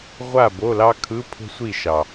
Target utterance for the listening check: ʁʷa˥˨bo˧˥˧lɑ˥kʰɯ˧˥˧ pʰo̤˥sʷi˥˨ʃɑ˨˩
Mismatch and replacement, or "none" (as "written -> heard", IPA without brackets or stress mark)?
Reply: none